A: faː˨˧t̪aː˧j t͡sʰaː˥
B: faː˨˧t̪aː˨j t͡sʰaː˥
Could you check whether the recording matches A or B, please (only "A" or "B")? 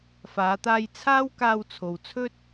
A